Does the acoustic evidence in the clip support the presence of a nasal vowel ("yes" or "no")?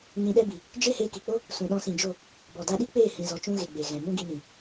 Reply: yes